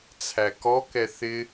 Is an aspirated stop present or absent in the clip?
present